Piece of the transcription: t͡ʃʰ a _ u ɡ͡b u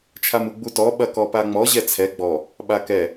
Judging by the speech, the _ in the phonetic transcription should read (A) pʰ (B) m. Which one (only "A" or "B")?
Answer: B